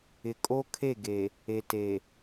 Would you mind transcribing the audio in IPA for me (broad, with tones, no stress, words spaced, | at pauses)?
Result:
ɪ˨kʼo˦ kʰe˦˨ ɡe˨ | eː˨te˨